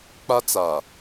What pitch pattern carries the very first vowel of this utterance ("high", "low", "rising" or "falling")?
high